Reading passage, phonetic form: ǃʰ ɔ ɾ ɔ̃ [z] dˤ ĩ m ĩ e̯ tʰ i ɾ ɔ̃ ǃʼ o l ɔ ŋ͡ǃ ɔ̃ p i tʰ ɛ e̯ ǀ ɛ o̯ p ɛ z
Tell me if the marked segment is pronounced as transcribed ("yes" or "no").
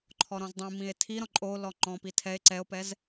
yes